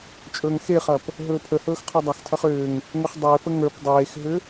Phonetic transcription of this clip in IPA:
t͡ʃʼ ɵː ŋ x e χ ɐ p | ɦ ɵː pʰ ə h ɵː x qʰ ə˞ dˤ ɐ x tʰ ɐ χ ʏː ŋ | ŋ ʏ χ dˤ ʏː f ə ŋ ə˞ p dˤ eː x ɦ ʏ

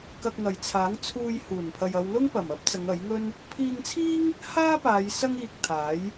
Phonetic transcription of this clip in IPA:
k ɐ˧ k̚ ŋ ɐ˨ j t͡sʰ aː˨˥ ŋ t͡sʰ uː˧ j h uː˨˩ n pʰ ɐ˨ j ɐ˨˧ w l ʊ˥ ŋ p ɐ˨˩ m ɐ˥ p̚ t͡s ɐ˨˧ ŋ ɐ˨˥ j ŋ ɵ˥ n | pʰ iː˧ ŋ t͡sʰ iː˥ ŋ | h aː˥ p aː˨˧ j s ɐ˥ ŋ iː˧ k̚ t̪ʰ aː˨˥ j

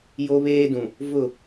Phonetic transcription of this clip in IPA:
j o˦ β eː˦ d ũ˨ | v ʊ˦˨

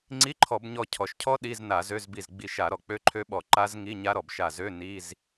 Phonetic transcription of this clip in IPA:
ŋ͡ǀ i˧˥˧ ǃʰ ɔ˧˩˧ b ɲ ɔ˧˩ cʰ ɔ˩ ʃ cʰ ɔ˦˥ ɗ i˧˥˧ z n a˧˩˧ z ø˧˥˧ z b i˧˩ z ɡ͡b i˧˩ ʃ a˧˩˧ ɾ ɔ˩ k͡p ø˦˥ ǃʰ ø˦˥ ɓ ɔ˧˩˧ ǃ a˦˥ z ŋ i˧˥˧ ɲ a˦˥ ɾ ɔ˩ b ʃ a˧˩ z ø˧˥˧ n i˧˥˧ z

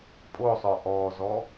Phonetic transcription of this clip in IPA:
pʼ o sˤ œ ʔ ɔ z ɔ

